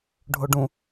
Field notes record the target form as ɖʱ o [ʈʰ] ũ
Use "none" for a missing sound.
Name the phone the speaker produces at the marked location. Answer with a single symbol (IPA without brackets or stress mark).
ɖ